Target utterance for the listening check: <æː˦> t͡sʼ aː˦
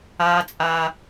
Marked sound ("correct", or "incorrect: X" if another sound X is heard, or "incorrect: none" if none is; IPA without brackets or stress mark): incorrect: aː˦